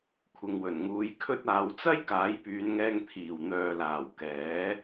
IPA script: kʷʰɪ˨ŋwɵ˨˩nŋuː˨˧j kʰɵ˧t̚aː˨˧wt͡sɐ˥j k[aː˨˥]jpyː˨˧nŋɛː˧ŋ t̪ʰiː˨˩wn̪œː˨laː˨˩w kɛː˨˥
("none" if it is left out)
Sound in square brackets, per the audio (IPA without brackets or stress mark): aː˨˥